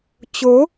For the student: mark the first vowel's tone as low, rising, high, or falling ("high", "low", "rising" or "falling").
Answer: rising